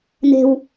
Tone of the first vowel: high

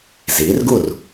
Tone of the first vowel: rising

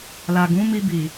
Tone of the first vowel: low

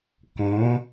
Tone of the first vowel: rising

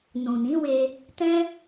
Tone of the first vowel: low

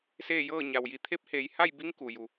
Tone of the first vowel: falling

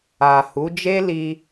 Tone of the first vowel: low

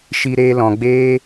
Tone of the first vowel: high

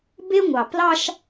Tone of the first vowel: high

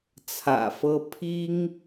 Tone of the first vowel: low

